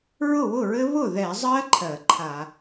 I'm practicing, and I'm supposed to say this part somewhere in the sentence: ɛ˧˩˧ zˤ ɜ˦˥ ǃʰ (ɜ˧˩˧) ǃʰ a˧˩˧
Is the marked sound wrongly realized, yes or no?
no